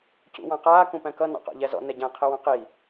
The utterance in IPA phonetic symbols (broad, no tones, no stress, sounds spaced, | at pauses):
c ṵ w ɑ̃ q aː k ũ p æ̃ k ʌ n ɑ̰ q ɑ̰ ʎ æ z ɔ̰ n ɛ ɟ æ̃ qʰ ɪ w ɑ̃ q i